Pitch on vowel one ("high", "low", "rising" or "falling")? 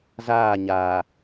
falling